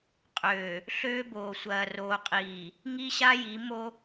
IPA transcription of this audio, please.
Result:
qʼ øː˨ | ɬ øː˦ b oː˨ sʷ ɐː˨ r oː˨ qʼ iː˨ | ŋ i˦ ɕ a˦ j i˨˦ m o˦

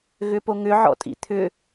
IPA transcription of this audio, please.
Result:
ɣ ʏ p o ŋ ʏ ʕ ɔ̰ tʼ ḭ t̪ʰ ʏ

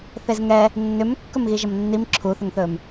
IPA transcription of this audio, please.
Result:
θ e z ŋ ɛ | nː ʏ m kː ɵ m ɣ i ʒ ʌ m nː i m ǁʰ u θ ʏ ŋ θ ɵ m

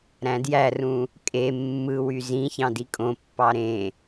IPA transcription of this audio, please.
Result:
ɾ æ̃ d j æ r ũ | kʼ e mː ɯ w y z ĩ ç ɑ̃ d i kʼ õ pː ɑ ɾ ẽ

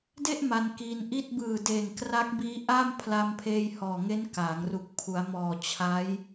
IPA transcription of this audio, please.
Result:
d e˥˩ ʔ m a˧ n k iː˧ n ʔ i˥˩ t̚ b ɯː˨˩ d eː˨˩ ŋ k r a˦˥ k̚ b iː˦˥ ʔ a˥˩ m pʰ l a˧ m pʰ eː˧ j h ɔː˨˩ ŋ e˦˥ n k a˩˦ ŋ r u˨˩ k̚ pʰ u˩˦ a̯ m ɔː˨˩ t͡ɕʰ a˦˥ j

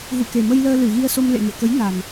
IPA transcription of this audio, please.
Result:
ɣ ṵ˧˨ k e˨˩ m ə˧ j l əː˧ l ɨ˧˩ ɣ i˧ ə̯ s o˧ m l ḛ˧˨ ŋ ɨ̰˧˨ ə̯ k ə˨˦ j n a˨˩ n

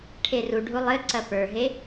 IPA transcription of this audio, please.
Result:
ʈʰ e r u ɖʱ u lˠ ɘ ǀ ɐ p ə˞ ɦ e

